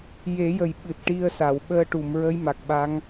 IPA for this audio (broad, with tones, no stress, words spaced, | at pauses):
je˨˩˦jə˨˩j ɓɨ˨˩t̚ʈi˧ə̯sa˨˩˨w ɓəː˧ʈu˨˩˨m ɹə˧˥jma˨˩k̚ɓa˧˥ŋ